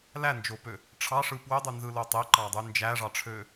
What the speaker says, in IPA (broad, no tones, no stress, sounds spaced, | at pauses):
l æ n d͡ʒ o p ø | ʈ͡ʂʰ ɑ ʂ ɯ p w ø dˤ y n z ɯ l o tˤ e ǃ ɑ dˤ y n d͡ʒ æ ʐ ɑ ʈ͡ʂʰ ø